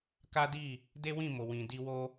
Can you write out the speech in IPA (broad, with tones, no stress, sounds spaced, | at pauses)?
k a˦ d i˦˨ | d e˦ w ĩ˦˨ m o˨ w ĩ˨ d i˧ w o˦